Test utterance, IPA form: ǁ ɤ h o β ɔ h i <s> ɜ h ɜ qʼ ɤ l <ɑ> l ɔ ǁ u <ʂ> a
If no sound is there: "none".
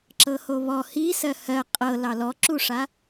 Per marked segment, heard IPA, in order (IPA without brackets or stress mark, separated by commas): s, ɑ, ʂ